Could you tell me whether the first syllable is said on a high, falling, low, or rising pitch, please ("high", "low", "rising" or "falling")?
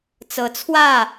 rising